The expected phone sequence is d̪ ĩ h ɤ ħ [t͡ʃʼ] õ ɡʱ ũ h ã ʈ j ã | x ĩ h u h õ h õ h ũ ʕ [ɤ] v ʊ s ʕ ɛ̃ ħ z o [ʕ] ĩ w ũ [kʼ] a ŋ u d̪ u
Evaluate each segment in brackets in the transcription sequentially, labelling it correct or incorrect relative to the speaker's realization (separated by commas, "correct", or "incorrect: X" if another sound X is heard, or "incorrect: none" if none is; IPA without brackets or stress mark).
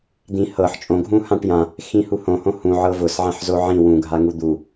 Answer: correct, correct, correct, incorrect: ɡʱ